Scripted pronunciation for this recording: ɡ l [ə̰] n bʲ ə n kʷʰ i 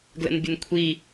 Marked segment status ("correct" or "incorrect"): correct